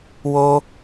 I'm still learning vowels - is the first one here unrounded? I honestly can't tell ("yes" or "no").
no